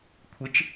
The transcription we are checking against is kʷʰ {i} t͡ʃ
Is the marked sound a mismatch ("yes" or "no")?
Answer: yes